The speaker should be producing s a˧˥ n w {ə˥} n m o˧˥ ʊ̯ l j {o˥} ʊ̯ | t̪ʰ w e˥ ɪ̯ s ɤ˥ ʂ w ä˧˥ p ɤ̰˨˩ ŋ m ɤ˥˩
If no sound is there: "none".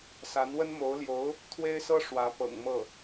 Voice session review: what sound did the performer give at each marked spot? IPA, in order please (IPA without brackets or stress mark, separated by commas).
ə˥, o˧˥